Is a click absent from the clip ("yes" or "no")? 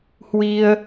yes